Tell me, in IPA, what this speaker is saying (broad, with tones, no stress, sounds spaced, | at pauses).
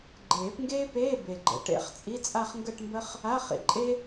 ɡ͡ǃ eː˨˩˦ p ŋ ɡ eː˥ p eː˧˥˧ b e˨˩ ɡ͡ǃ ə̰˨˥ ʈ ḛ˨˩˦ χ t͡sʼ i˧˥˧ t͡sʼ a˥˧ χ ŋ ɡ ə˥˧ ʈ m b ə˥ χ | a˧˥˧ χ ḭ˨˩˦ ǃʼ e˥